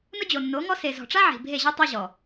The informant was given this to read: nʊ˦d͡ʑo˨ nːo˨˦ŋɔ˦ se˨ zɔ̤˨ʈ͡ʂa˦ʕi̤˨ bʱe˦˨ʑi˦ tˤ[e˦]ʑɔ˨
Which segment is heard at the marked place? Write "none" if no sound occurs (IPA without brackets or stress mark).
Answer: e˦